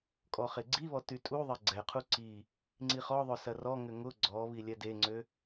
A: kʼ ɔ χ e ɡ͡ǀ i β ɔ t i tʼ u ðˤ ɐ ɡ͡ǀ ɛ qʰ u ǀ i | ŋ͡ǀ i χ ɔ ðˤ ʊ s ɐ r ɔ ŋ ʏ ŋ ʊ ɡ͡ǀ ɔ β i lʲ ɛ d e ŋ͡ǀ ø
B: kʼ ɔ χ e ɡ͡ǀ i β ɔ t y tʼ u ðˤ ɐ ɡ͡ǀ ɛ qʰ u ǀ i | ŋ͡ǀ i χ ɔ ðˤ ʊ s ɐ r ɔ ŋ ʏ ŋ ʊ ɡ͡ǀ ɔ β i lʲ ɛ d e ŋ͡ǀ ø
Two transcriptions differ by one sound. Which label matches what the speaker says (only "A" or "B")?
B